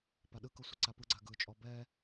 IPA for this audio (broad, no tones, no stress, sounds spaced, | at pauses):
p a ɗ ɯ k ɤ sʷ ɯ ǀ a p ɯ ɡ͡ǀ a ɡ ɯ t͡ʃʼ ɔ b ɛ